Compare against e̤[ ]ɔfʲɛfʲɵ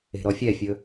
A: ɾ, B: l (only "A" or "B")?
A